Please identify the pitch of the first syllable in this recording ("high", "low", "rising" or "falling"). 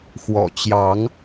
low